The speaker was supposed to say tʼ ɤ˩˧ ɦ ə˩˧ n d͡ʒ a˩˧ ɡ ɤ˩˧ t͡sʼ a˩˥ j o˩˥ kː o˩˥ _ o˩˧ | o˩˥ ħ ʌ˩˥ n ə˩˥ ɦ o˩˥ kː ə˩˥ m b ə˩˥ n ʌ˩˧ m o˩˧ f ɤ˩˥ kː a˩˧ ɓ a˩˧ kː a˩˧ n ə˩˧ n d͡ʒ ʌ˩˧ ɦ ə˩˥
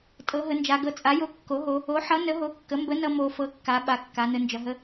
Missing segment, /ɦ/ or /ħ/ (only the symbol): ɦ